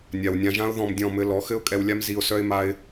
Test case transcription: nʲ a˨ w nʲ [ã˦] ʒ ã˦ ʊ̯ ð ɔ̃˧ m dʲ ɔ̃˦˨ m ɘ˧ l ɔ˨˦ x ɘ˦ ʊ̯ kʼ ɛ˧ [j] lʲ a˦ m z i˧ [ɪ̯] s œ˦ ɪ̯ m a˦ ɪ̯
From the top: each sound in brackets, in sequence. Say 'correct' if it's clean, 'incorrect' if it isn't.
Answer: incorrect: ã˧, incorrect: w, incorrect: ʊ̯

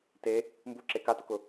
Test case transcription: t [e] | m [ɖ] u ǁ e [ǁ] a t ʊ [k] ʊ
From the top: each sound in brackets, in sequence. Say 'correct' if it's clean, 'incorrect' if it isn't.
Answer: correct, incorrect: b, incorrect: k, correct

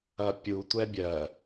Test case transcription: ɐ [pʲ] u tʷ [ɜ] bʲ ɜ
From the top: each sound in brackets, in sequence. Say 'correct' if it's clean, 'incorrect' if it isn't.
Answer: correct, incorrect: ɛ

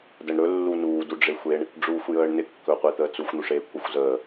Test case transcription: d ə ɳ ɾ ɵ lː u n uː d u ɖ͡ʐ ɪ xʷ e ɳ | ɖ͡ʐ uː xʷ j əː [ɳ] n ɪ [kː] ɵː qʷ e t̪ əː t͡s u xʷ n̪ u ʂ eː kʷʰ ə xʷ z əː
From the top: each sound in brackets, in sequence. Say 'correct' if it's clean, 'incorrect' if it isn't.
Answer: correct, correct

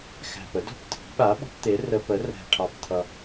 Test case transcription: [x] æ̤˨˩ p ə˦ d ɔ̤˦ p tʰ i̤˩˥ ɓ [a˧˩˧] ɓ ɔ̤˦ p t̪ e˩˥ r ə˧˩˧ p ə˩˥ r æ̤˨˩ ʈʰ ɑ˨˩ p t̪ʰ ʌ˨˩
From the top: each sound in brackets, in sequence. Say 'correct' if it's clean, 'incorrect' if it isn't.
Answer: correct, incorrect: a˩˥

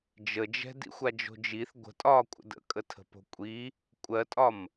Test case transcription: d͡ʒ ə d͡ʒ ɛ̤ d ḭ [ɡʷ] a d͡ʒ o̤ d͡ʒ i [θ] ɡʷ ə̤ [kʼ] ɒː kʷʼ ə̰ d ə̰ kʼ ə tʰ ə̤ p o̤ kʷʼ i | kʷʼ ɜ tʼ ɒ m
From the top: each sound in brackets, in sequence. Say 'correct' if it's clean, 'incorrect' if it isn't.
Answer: incorrect: xʷ, correct, incorrect: tʼ

